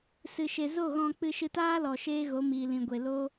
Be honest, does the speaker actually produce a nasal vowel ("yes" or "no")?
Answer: yes